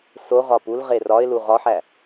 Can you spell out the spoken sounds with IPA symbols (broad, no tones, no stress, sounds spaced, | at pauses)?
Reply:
s o ʁ ɒ p u l ʁ e r ɒ ɪ̯ l u ʁ ɒ ħ æ